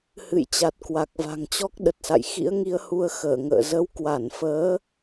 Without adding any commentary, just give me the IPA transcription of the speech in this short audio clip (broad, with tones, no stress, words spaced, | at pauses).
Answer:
hɨ̰˧˨jt͡ɕa˨˩t̚ kwa˨˩k̚va̤˨˩ŋt͡ɕɔ˦˥k̚ ɗə˨˩t̚sa̰˧˨j xḭ˧˥ə̯ŋi˧ə̯ hu˧ə̯xəː˧˩ŋə̰ː˧˨ zə˨˦wkwa˧˩n fəː˨˦